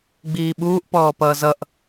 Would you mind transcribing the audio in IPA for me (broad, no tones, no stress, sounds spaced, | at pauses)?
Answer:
ɡ͡b iː ɓ uː ʔ p ɔː p ʌː z ʌ ʔ